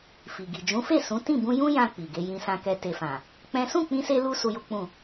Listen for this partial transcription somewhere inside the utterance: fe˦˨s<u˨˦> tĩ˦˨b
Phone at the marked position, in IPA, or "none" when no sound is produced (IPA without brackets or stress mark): ũ˨˦